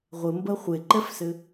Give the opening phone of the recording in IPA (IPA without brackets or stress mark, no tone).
ʁʷ